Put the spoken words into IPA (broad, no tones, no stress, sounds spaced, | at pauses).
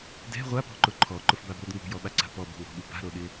d ɛ̤ ʁʷ a p ɔ̤ ǃ ʊ ǃʰ ɔ ǃ ʊ f b a b l ʊ d ŋ ṳ j ɔ ɓ a ǀ a̤ p ɔ b ṳ ŋ ɔ̤ ɓ u b a̤ ɾ o ɗ ɪ